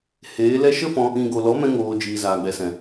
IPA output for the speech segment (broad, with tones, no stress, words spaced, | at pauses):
heː˨˦lɛ˦ ʃə˦fɔ̃˧ | ĩ˨ɡo˨lɔ˨˦ mɛ̃˦ ŋoː˧d͡ʒiː˨ zaː˨ɡ͡bɛ˨sɛ̃˨